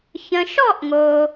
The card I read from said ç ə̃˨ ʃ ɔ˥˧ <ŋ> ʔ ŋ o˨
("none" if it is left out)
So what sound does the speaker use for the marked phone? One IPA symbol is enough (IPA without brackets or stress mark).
none